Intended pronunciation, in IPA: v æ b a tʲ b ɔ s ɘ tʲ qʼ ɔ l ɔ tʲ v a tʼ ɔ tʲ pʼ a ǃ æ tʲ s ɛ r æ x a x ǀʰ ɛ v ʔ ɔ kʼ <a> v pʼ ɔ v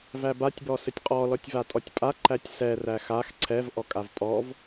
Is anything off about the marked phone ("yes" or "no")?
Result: no